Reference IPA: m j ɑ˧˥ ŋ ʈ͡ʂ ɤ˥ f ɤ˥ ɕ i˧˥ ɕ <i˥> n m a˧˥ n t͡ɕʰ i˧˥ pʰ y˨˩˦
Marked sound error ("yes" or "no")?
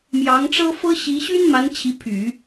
yes